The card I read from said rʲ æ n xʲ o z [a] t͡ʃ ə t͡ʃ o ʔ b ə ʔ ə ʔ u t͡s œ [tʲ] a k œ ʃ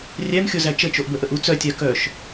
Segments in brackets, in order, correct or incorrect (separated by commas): incorrect, correct